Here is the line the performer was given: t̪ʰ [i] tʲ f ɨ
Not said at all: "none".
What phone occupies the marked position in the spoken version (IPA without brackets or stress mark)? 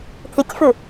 i